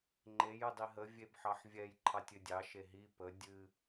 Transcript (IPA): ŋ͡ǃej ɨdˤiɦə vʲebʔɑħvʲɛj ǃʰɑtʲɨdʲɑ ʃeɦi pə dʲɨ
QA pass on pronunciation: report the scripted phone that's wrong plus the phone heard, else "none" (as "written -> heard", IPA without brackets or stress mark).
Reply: ʔ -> ħ